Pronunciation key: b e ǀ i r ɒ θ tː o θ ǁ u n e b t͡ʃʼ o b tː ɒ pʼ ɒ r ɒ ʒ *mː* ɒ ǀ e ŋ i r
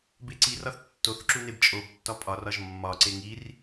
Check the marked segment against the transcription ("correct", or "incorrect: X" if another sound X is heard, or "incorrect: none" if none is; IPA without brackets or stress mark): correct